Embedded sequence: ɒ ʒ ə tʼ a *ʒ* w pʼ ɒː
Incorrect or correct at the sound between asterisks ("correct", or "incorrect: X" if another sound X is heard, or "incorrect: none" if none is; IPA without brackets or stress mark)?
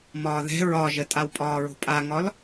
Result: incorrect: none